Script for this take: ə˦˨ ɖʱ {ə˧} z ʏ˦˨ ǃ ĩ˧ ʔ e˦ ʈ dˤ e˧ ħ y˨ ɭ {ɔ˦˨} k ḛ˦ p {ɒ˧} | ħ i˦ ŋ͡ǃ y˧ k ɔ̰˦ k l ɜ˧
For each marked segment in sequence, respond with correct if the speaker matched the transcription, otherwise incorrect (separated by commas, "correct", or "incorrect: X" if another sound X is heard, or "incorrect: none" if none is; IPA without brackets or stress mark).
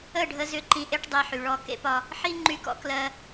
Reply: correct, correct, correct